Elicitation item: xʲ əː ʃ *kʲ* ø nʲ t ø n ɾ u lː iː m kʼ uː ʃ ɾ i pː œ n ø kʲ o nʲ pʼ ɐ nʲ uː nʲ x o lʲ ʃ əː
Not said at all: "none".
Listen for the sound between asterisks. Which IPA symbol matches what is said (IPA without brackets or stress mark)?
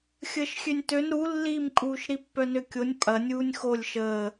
xʲ